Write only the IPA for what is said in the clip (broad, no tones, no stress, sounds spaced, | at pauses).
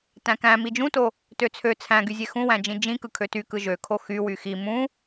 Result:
t æ̃ k æ̃ m i d͡ʒ ũ t o | t ø t͡sʰ ø t͡sʰ æ̃ ɡ y zʲ e x ũ w æ̃ d͡ʒ ĩ d͡ʒ ĩ k ɯ kʰ ø t y k ɯ ʒ ø kʰ o x y w y x i m ũ